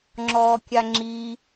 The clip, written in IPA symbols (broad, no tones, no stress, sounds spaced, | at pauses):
ŋ͡ǁ ɔː kʲ a ŋ͡ǁ i